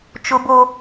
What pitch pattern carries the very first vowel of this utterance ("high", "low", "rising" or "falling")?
high